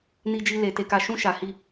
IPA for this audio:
n i˦ d͡ʒ i˦ l e˧ t e˦ k a˦ ʃ ũ˦ ʃ a˧ h i˦

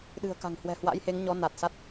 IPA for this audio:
ɗ ɨ̤˨˩ ə̯ k a̤˨˩ ŋ h w ɛ̤˨˩ h w a̰˧˥ j h e˨˦ ŋ ɲ ɔ˨˦ n a˨˩ t̚ s a˦˥ t̚

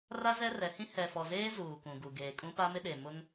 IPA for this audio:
r a˦ z ɛ˦ r ɛ˨˦ h ĩ˦ h ɛ˨ f ɔ˨ z eː˦ z uː˨ k ũ˨ ɡ u˨ ɡ eː˨ kʼ ũ˦ p a˦ m ɪ˦ ɗ e˨ m ʊ˦ ŋ

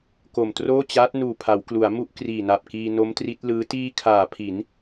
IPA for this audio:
k o˨˩ m t r oː˥˩ t͡ɕ aː˦˥ t̚ n uː˨˩ pʰ a˩˦ w k l u˩˦ a̯ m u˥˩ ʔ k r iː˨˩ n a˨˩ p̚ k iː˧ n o˦˥ m t r i˦˥ t̚ l ɯː˦˥ t iː˧ kʰ aː˩˦ pʰ i˩˦ n

